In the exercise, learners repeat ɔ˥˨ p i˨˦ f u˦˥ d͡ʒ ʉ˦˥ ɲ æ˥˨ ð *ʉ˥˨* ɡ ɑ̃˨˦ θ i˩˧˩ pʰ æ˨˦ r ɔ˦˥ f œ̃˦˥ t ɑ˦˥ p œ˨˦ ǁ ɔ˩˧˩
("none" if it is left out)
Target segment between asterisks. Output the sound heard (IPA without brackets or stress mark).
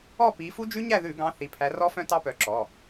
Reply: ʉ˧˩˧